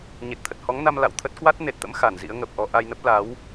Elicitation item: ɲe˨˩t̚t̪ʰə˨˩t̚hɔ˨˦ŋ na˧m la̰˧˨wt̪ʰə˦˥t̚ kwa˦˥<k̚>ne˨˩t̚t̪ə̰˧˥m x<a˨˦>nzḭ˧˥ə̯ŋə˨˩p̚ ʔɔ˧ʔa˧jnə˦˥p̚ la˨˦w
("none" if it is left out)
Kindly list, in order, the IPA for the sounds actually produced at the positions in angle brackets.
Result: t̚, a˧˩

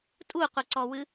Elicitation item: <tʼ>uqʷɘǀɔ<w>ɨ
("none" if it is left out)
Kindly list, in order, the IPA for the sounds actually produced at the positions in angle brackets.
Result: tʼ, w

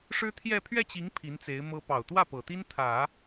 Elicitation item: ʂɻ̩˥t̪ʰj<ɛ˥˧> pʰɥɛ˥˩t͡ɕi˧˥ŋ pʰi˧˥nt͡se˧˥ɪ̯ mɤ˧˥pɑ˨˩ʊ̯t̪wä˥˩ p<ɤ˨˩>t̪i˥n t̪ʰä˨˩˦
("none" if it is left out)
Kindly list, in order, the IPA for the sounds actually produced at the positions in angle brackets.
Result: ɛ˥˧, ɤ˨˩

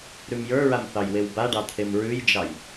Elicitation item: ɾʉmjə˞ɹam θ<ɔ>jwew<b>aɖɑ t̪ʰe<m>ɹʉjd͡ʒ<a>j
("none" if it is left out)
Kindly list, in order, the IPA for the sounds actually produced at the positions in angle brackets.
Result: ɑ, b, m, ɑ

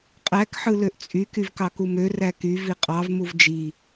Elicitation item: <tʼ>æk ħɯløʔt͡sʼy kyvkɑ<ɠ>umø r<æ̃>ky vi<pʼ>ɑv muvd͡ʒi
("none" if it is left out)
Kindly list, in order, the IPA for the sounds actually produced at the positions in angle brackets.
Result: qʼ, k, æ, qʼ

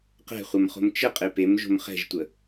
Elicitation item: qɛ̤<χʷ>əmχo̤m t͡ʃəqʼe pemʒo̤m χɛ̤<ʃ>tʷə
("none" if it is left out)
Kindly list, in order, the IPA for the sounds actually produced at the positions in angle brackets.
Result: χʷ, ʒ

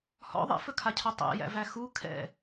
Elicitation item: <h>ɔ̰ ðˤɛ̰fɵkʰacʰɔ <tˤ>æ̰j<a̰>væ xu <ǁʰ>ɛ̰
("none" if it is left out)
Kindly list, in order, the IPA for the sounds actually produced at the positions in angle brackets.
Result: h, tˤ, æ̰, kʰ

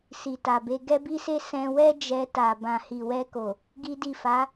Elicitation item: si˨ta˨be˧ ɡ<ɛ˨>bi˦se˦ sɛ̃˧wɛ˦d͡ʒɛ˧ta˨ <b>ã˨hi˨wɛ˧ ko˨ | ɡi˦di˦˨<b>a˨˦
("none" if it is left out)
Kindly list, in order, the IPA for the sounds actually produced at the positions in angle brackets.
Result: ɛ˦, b, f

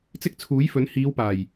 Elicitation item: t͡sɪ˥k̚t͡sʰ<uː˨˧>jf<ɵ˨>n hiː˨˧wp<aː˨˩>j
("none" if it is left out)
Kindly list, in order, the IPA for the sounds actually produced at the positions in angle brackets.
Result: uː˨˥, ɵ˨˥, aː˨˩

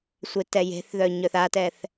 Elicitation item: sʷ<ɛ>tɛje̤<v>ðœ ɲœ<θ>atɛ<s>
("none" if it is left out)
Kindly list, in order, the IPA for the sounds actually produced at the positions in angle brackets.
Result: e, θ, θ, θ

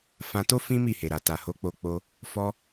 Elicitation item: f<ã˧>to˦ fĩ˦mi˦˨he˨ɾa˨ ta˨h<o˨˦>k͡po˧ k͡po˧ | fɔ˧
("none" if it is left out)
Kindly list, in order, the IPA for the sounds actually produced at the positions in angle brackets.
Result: ã˧, o˨˦

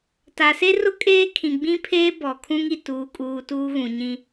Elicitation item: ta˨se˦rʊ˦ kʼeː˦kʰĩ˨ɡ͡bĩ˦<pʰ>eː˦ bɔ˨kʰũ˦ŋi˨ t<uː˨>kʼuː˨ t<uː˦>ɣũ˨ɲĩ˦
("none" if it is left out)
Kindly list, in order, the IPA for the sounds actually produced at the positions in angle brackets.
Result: pʰ, uː˨, uː˦

